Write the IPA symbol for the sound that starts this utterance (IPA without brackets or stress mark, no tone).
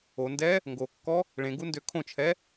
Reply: o